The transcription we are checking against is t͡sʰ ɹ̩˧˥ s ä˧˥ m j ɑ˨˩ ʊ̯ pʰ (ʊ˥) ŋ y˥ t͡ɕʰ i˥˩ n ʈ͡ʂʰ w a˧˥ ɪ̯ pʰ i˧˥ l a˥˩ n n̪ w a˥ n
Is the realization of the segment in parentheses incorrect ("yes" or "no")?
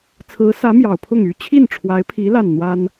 yes